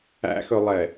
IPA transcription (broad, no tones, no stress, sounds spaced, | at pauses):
æ̰ x ɵ lˠ ɛ